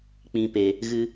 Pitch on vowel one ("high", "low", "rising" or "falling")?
low